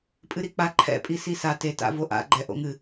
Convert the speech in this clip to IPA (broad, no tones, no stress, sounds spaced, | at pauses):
pʼ ɨ ɾ i k͡p a ǃʰ ɛ̰ pʼ i s i s a t e t a̰ v o ʔ a̰ ɡ͡ǃ ɛ ʔ o̰ ŋ ɨ